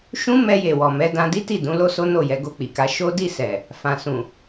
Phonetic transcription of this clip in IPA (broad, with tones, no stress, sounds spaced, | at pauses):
ʃ ũ˦ m ɛ˧ j e˨ w ɔ˨ m ɛ˨˦ d ã˧ d i˦ t i˦˨ d ũ˨˦ l o˦ s o˦ n o˦˨ j ɛ˨˦ ɡ o˧ k͡p i˨ k a˧ ʃ o˦ d i˦˨ s ɛ˨ | f ã˨ s ũ˨